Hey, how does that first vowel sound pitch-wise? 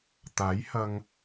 rising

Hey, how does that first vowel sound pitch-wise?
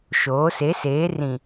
rising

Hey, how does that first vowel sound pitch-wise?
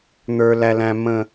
high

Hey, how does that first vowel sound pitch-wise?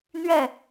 falling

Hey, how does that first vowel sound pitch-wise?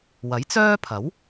rising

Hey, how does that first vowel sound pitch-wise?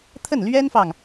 falling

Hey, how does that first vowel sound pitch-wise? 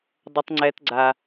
high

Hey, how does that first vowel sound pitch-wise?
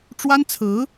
high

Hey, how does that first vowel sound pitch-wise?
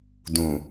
low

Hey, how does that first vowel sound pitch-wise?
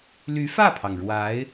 rising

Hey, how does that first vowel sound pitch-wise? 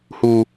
high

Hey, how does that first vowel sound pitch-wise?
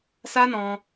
high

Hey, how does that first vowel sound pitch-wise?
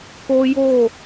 high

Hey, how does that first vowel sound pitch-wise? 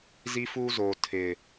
high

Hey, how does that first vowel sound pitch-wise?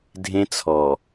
high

